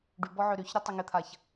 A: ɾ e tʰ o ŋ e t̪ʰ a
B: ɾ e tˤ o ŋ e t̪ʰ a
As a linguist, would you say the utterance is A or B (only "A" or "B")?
B